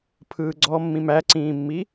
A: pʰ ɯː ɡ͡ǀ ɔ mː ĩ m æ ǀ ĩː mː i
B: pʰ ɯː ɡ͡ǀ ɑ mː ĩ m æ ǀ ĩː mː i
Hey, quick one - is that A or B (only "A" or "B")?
A